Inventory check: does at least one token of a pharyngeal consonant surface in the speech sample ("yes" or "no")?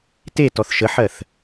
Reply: yes